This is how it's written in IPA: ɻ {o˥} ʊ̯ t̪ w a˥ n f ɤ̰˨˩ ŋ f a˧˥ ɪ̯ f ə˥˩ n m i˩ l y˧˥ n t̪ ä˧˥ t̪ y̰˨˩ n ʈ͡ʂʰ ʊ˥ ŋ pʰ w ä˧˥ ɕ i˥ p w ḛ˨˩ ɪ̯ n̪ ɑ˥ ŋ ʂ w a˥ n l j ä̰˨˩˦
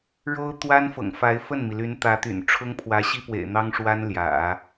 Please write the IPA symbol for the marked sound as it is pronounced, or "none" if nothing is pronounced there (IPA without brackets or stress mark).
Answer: o˥